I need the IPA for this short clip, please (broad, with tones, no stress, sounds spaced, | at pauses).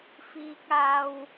f iː˥ k̚ aː˥ w